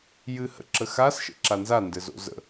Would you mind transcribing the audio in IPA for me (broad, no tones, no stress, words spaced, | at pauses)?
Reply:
jɨhə̰ǁəxas ʃə̰ǁanza ndɘzo̰zə̰